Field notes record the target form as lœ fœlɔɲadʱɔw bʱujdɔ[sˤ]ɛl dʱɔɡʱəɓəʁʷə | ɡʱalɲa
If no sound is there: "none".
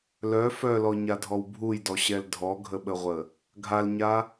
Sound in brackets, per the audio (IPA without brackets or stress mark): ɕ